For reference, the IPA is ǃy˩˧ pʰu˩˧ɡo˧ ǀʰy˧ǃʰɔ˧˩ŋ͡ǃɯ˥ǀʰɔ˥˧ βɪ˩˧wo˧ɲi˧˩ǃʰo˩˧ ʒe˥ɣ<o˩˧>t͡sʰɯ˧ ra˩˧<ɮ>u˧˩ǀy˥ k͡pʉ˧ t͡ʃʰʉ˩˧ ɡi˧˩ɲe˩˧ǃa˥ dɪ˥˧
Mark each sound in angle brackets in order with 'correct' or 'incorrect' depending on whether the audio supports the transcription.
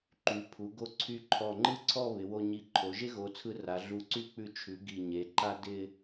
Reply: correct, correct

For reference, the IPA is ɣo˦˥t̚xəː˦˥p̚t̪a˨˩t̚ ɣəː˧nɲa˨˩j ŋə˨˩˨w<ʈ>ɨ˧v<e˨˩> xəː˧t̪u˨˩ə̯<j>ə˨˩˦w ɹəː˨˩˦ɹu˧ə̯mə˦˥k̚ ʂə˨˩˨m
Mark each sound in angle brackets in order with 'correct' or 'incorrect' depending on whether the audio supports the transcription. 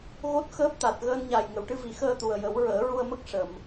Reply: correct, incorrect: i˨˩, correct

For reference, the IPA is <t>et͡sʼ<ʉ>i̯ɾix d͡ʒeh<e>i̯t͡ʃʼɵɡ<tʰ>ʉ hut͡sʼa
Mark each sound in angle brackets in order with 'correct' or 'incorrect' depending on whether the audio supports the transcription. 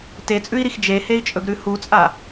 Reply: correct, correct, correct, incorrect: ɾ

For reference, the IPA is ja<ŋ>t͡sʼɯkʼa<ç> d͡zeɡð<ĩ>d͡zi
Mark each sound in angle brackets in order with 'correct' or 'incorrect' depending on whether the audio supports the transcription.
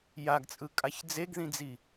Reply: incorrect: ɡ, correct, correct

